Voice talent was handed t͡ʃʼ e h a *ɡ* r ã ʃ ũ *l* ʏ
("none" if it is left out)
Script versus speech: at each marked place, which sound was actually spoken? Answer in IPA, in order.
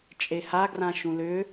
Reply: ɡ, l

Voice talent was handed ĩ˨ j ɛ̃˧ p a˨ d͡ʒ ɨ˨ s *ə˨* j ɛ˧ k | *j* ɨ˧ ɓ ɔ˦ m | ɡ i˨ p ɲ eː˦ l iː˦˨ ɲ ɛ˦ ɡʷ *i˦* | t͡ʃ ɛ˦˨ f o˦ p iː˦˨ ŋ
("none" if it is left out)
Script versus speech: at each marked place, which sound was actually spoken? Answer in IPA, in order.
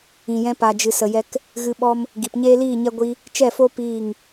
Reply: ə˨, ɣ, i˦

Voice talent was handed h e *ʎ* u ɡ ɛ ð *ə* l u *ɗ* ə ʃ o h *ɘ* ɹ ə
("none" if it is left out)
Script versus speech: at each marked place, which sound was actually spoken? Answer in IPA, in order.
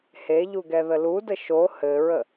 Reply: ʎ, ə, d, ɘ

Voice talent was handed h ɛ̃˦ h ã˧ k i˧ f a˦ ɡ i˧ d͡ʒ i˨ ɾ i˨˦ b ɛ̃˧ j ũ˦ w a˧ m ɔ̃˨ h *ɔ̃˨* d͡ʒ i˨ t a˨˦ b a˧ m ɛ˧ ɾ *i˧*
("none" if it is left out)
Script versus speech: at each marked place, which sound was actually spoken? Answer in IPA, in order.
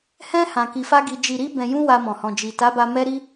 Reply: ɔ̃˨, i˧

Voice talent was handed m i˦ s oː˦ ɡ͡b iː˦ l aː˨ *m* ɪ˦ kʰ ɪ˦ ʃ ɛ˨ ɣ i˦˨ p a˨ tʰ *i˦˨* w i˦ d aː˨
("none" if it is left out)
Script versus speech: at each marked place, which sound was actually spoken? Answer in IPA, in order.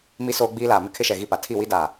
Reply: m, i˦˨

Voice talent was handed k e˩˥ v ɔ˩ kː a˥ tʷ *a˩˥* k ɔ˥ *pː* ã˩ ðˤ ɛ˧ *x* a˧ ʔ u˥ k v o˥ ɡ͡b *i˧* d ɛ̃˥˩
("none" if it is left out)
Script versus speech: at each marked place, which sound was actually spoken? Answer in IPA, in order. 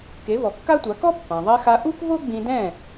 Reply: a˩˥, pː, x, ĩ˧

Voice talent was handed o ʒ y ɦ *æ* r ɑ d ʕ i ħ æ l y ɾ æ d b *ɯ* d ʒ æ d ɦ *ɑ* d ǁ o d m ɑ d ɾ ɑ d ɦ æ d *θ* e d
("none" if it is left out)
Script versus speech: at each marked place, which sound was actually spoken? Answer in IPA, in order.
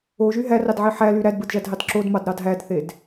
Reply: æ, ɯ, ɑ, θ

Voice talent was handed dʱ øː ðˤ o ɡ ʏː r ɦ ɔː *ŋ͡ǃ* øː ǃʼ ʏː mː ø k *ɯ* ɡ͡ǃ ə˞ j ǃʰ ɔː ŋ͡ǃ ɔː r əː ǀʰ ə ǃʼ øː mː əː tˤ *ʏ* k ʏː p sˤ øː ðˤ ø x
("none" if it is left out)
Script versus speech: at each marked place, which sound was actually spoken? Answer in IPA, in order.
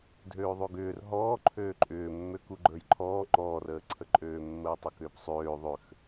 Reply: ǃʰ, u, ʏ

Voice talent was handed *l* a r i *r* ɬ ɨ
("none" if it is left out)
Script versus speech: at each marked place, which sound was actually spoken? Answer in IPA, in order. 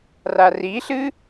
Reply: r, none

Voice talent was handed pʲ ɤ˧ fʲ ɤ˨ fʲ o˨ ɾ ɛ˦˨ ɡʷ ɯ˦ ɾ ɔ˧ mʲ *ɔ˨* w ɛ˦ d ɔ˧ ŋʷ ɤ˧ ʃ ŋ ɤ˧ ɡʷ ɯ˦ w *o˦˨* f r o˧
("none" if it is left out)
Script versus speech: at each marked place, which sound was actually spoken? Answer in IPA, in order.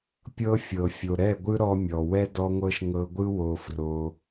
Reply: ɔ˨, o˧

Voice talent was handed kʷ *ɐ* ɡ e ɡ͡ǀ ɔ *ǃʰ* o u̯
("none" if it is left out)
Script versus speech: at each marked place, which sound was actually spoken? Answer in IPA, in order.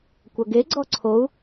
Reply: ɐ, ǀʰ

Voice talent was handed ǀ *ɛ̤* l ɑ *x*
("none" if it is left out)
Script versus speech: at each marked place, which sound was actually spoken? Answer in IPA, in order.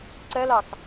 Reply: ɛ, k

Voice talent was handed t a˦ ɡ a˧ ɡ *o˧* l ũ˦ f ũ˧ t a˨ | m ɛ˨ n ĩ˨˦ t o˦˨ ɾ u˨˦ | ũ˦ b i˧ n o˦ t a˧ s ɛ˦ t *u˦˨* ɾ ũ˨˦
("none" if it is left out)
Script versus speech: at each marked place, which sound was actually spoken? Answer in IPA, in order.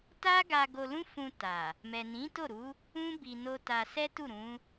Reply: o˧, u˦˨

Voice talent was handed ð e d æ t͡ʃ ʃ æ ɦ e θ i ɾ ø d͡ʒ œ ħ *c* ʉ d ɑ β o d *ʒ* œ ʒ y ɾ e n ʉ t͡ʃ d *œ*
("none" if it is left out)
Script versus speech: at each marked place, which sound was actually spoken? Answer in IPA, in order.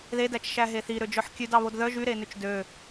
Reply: kʲ, ð, ø

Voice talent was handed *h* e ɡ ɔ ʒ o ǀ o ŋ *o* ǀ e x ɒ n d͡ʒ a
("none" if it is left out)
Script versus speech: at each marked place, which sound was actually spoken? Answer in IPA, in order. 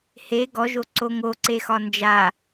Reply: h, o

